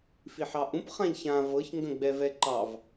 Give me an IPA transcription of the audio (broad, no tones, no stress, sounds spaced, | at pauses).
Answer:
f i ħ ɑ ʔ ũ p χ ã ʎ ç ã v ɤ ç ŋ ɡ ə̃ ɡ͡b ɛ v ɛ ǃ ɑ v